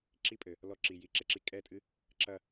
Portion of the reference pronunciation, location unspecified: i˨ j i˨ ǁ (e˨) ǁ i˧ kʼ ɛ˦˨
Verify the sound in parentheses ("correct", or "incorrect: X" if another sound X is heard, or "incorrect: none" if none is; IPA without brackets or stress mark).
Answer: correct